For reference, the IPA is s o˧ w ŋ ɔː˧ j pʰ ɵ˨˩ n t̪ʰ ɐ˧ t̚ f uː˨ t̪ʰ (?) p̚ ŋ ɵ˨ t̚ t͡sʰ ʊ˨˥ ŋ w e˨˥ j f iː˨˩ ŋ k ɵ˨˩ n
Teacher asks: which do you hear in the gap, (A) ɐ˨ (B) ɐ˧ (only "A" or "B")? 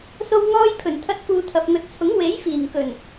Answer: A